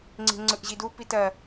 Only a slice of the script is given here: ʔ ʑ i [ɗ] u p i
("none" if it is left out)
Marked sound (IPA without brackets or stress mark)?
d